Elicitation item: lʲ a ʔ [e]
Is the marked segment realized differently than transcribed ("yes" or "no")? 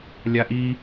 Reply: yes